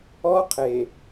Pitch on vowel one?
high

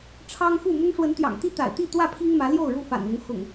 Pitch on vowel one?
high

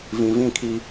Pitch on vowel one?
low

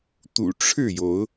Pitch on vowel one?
low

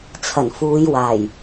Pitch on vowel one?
low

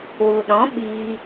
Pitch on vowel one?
low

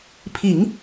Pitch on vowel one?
low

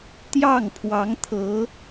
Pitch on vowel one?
falling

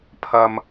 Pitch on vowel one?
low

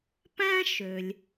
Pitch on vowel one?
high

